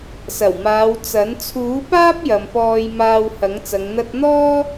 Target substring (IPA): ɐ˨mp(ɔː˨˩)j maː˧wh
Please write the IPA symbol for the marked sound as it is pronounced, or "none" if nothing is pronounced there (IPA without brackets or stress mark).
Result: ɔː˧